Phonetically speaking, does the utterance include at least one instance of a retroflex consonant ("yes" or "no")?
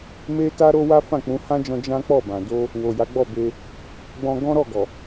no